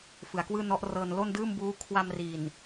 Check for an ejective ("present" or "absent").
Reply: absent